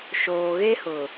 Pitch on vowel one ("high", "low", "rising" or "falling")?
low